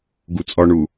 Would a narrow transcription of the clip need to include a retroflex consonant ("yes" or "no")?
yes